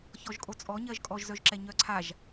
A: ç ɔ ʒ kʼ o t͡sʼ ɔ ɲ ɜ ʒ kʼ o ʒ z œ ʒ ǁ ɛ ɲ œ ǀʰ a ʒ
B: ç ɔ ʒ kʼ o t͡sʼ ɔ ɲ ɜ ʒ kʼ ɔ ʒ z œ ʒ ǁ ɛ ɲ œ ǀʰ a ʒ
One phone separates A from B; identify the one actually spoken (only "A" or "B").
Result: B